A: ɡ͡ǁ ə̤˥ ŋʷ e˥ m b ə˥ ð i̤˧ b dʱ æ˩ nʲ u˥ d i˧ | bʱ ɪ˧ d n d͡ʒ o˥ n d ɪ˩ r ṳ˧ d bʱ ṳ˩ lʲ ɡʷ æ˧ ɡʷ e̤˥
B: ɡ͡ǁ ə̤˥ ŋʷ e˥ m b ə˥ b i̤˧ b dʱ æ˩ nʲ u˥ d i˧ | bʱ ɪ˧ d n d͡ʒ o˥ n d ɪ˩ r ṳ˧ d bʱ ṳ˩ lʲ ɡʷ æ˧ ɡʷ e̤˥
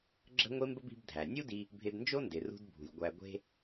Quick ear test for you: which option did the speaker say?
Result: B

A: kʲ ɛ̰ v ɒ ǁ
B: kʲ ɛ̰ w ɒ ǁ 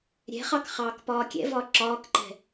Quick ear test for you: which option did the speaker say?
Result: A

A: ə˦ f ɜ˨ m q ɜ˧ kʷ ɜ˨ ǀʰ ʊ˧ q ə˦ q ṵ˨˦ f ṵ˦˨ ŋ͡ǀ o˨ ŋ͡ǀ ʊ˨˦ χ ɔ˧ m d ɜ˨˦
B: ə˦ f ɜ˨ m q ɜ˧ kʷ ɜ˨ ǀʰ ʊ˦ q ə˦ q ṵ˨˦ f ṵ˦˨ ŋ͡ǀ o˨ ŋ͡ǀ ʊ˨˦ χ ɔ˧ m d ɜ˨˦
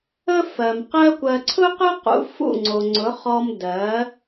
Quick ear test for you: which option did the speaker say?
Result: B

